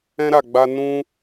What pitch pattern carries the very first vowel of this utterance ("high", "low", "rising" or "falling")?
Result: high